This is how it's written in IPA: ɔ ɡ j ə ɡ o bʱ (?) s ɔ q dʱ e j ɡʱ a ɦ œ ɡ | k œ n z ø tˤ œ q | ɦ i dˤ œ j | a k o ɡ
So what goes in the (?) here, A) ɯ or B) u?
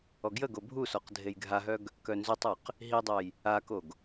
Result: B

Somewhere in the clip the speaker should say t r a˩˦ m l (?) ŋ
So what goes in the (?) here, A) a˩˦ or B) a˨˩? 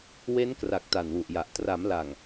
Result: B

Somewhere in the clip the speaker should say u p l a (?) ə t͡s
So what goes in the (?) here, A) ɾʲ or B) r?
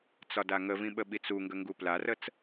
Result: B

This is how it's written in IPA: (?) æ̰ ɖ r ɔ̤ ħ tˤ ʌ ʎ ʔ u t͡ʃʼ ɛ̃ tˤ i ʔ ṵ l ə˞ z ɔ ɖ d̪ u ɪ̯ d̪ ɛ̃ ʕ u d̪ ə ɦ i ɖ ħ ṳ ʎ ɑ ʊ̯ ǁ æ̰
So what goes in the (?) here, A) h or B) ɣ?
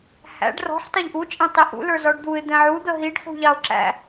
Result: A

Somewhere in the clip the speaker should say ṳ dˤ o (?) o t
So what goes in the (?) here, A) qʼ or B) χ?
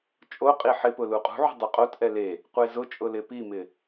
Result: A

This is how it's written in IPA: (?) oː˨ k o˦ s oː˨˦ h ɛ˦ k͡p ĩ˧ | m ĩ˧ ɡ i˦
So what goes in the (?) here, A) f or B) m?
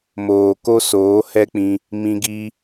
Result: B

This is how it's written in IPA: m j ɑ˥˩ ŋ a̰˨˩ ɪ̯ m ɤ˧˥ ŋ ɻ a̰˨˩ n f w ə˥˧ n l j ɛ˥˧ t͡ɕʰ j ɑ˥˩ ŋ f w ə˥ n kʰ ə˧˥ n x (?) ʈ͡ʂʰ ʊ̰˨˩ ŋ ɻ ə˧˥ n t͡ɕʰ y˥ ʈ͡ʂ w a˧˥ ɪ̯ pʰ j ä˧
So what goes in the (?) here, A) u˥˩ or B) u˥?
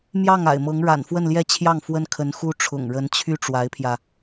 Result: B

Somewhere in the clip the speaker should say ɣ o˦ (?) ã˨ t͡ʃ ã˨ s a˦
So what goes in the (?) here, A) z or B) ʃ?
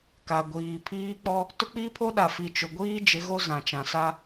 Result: A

